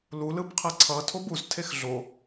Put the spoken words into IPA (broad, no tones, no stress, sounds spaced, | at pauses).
l u l ɯ b qʰ ɛ ǀʰ ʌ tʰ o b u z tʰ e x ɮ o